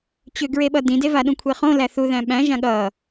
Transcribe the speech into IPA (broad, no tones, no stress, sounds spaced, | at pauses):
t͡ɕ ʏ ɡ ɹ e ɓ ʌ d ĩ d e v a ɗ ũ kʷʰ e χ õ l æ θ u ð æ̃ ɓ æ̃ ʒ ã ɠ ʌ